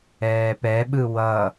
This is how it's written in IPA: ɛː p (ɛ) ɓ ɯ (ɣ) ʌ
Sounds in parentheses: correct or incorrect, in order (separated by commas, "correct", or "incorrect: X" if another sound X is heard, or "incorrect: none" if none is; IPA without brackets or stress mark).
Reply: correct, incorrect: w